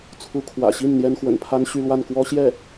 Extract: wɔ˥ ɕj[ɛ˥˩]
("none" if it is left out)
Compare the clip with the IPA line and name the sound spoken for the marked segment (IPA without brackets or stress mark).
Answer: ɛ˥˩